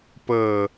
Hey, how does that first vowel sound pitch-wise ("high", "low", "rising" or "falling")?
low